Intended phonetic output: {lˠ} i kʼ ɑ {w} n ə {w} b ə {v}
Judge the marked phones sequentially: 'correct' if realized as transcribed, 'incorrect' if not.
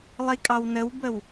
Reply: correct, correct, correct, incorrect: w

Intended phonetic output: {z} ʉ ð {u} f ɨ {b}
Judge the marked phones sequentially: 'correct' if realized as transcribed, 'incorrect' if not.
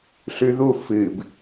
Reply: incorrect: ɬ, correct, correct

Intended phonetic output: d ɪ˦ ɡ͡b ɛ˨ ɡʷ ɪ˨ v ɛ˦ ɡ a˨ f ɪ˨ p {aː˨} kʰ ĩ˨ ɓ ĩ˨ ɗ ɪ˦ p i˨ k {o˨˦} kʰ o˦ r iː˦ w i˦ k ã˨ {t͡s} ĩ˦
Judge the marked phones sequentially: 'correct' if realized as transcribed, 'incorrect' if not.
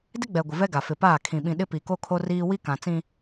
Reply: incorrect: aː˦˨, incorrect: o˦, correct

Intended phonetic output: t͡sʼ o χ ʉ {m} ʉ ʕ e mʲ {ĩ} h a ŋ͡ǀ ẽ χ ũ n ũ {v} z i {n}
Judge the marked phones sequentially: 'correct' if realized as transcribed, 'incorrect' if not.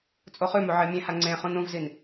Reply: correct, incorrect: ẽ, correct, correct

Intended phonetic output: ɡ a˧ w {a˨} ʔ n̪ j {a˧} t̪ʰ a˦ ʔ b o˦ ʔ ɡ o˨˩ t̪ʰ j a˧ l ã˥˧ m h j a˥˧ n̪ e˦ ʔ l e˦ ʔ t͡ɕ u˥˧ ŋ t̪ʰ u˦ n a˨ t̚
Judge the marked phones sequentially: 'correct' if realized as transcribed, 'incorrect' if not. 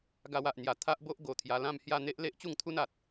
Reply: correct, incorrect: a˨˩

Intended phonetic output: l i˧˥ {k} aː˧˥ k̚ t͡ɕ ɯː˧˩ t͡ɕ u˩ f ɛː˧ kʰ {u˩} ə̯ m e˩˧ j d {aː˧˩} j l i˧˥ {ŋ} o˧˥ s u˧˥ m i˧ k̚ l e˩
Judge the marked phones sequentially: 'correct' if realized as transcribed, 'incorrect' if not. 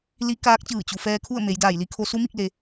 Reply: correct, incorrect: u˥˨, correct, incorrect: kʰ

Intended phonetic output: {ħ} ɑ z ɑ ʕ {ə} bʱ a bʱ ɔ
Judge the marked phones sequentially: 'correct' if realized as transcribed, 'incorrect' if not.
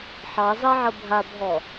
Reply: correct, correct

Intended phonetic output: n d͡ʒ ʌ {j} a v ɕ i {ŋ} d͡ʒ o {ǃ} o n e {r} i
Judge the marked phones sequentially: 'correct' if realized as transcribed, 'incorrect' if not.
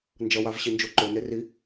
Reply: incorrect: w, incorrect: n, correct, correct

